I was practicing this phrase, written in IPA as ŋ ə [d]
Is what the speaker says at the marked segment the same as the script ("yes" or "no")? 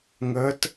no